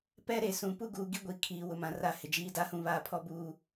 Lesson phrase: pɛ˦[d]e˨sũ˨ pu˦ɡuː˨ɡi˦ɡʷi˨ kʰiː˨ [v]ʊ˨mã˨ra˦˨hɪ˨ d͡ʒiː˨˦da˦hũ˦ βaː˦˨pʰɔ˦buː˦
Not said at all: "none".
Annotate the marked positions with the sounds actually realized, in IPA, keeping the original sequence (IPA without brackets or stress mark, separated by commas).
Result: ɾ, w